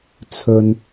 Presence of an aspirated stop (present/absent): present